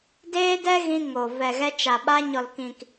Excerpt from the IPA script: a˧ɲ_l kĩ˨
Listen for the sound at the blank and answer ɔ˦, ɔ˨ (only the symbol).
ɔ˨